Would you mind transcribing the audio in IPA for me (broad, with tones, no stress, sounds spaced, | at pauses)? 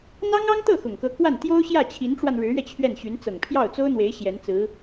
n̪ ɑ˥ ŋ ɑ˥ ŋ t̪ ɤ˥˩ x ʊ˨˩ ŋ k ɤ˧˥ k w a˥˩ n t̪ j o˥ ʊ̯ ɕ j ä˥˩ t͡ɕʰ i˧˥ n ʈ͡ʂ w a˧ n ɻ ɻ̩˧˥ ɥ ɛ˧ t͡ɕʰ ɥ ɛ˥˩ n ɕ y˧˥ n t͡s ɤ˨˩ ŋ pʰ j ɑ˥˩ ʊ̯ t͡s o˥ ʊ̯ n̪ w e˧˥ ɪ̯ ɕ j ɛ˧˥ n t͡s ɹ̩˧˥